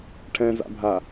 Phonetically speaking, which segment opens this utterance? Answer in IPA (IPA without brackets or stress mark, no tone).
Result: ʈʰ